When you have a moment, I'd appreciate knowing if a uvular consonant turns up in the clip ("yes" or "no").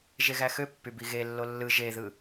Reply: no